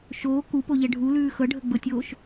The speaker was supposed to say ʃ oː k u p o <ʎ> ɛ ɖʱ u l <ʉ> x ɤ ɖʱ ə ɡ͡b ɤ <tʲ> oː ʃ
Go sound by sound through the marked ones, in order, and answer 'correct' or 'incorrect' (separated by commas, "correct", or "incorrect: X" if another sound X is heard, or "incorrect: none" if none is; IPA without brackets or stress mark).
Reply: correct, incorrect: ʉː, correct